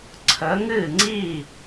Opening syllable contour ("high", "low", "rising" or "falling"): rising